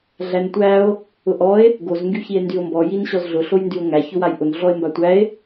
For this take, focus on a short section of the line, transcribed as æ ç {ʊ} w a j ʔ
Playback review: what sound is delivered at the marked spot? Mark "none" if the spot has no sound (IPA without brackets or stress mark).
ʊ